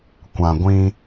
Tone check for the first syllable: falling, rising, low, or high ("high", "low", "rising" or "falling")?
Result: low